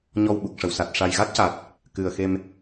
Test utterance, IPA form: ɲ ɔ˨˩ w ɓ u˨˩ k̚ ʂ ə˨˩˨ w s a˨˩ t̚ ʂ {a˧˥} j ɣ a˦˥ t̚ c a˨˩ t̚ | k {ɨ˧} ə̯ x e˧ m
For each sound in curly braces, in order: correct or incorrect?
incorrect: a˨˩, incorrect: ɨ˨˩

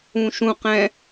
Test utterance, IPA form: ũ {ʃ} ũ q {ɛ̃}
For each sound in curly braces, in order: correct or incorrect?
correct, correct

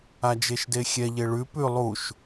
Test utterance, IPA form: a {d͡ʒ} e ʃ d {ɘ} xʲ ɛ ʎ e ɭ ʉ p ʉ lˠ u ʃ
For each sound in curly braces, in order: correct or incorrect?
correct, incorrect: e

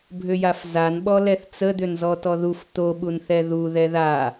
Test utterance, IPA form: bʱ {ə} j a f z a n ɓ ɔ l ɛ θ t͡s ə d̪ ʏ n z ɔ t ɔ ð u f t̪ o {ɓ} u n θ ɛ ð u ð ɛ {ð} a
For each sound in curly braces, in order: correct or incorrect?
incorrect: ʏ, correct, correct

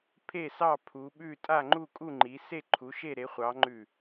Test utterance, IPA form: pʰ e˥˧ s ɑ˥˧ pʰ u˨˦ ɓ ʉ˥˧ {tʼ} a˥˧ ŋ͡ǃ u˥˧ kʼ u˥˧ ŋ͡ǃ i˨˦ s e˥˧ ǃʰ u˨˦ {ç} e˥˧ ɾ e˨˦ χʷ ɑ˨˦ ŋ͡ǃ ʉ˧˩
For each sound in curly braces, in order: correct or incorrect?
correct, incorrect: ʃ

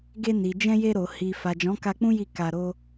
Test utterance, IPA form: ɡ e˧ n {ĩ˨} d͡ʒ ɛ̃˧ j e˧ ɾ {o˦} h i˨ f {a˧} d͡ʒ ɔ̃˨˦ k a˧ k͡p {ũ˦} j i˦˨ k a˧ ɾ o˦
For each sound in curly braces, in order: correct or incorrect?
incorrect: i˨, incorrect: o˨, incorrect: a˨, correct

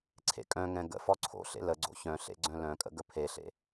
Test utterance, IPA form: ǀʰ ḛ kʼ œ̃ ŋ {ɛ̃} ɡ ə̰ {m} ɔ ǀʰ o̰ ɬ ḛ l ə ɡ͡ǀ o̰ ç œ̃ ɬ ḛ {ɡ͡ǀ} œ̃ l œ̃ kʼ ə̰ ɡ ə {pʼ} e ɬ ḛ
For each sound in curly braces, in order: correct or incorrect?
correct, incorrect: f, correct, incorrect: pʰ

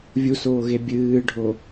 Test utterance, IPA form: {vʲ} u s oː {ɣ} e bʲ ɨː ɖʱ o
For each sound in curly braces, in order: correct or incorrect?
correct, correct

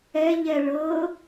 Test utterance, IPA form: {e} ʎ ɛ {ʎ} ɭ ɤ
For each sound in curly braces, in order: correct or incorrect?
incorrect: ɛ, incorrect: none

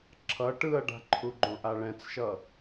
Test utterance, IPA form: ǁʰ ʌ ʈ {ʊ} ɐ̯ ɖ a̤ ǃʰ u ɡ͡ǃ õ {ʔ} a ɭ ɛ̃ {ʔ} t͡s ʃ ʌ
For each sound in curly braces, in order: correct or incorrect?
incorrect: ɯ, correct, incorrect: none

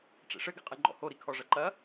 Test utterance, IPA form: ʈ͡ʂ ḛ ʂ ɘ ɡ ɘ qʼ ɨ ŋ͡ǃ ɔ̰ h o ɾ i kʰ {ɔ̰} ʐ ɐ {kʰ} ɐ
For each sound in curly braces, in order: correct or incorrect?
incorrect: ɔ, incorrect: ǃ

